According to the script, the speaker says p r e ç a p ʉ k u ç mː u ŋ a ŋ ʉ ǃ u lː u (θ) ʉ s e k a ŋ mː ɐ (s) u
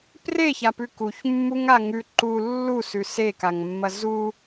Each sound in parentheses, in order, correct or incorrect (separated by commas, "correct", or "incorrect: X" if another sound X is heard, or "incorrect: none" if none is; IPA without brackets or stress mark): incorrect: s, incorrect: z